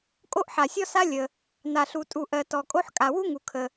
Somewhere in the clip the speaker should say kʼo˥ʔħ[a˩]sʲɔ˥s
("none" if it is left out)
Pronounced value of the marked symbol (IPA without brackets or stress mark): a˩